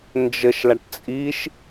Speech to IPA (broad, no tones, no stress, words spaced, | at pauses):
nd͡ʒəʃlaʈ t͡sʼiʃ